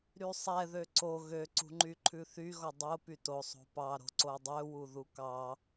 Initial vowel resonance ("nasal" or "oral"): oral